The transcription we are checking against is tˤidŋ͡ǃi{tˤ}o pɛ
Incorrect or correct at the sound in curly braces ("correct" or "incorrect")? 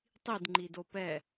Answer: incorrect